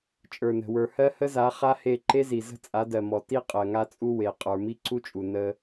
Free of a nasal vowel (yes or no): yes